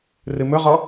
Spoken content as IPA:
r ɨ m ɵ ʁ ɔ

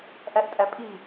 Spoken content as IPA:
ʔ æ ʔ tʼ æ pʼ i

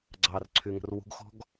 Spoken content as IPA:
ɡ͡ǀ ɑ r ǀʰ y ŋ ə̤ r w ṳ ɡ x ɔ̤ ɡ

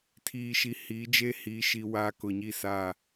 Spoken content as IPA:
tʰ iː˨ ʃ i˨ h iː˨˦ d͡ʒ e˦ h iː˦ ʃ i˦ w aː˦ k ʊ˨ ɲ i˦ s a˦˨

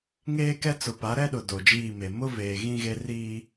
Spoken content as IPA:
ŋ eː˦ k ɛ˦ t͡s ʊ˨ p a˨˦ ɾ ɛ˦ ɗ ʊ˨ d o˨ d͡ʒ iː˦˨ m e˨ m ʊ˦ v eː˨ ɣ ĩ˦ ɣ e˦ r iː˦

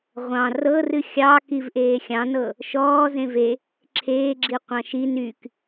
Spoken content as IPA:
ʁʷ ɑ̃ r ɤ r ɨ xʲ ɑ k i v ʔ eː xʲ ɑ̃ n ɤ | ʃ ɔː z ẽ v e | ǁʰ eː ɡ͡ǁ i qʷ ɑ̃ ʃ i n y k

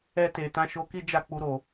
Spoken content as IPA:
ɛ˧ t e˨ t ã˧ ʃ o˧ k i˦ d͡ʒ a˦˨ k͡p u˧ ɾ o˨

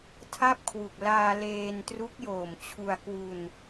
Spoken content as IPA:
tʰ a˥˩ p̚ kʰ w u˨˩ k̚ l aː˧ l eː˧ n t r u˦˥ k̚ j oː˨˩ m t͡ɕʰ u˧ a̯ k w u˧ n

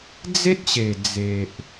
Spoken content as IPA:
d͡z e˦ t̚ ɕ e˨˩ d͡z e˨ ʔ

